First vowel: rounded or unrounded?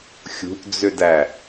rounded